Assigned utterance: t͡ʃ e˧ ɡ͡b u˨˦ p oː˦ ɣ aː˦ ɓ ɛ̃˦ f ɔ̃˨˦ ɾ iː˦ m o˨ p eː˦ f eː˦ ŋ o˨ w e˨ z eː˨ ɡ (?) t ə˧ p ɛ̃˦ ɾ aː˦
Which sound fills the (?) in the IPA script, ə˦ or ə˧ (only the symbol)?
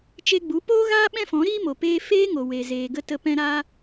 ə˧